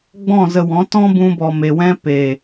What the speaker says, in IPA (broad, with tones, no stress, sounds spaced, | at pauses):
ɡ͡b ɔ̃˦˨ z ə˧ w ɔ̃˨˦ t ɔ̃˦ b ũ˧ b ɔ˨ m e˨ w ɛ̃˧ p eː˨